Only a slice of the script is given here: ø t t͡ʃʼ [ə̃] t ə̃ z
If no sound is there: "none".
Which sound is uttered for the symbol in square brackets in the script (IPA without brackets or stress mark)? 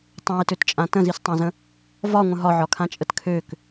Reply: ã